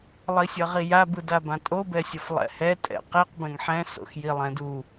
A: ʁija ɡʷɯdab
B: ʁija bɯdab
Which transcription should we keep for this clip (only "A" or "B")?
B